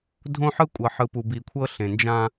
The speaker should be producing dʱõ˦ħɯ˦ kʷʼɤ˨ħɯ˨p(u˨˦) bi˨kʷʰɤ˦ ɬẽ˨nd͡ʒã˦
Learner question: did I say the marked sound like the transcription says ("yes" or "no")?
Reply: no